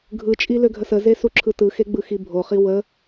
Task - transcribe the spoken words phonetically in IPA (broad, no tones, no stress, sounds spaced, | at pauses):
ɡʱ ɯ t͡ʃʼ i l ø ɡʱ ə s ə z e s u ǁʰ ɯ t ɯ x e ɡ͡b ɯ x i bʱ o χ i w ə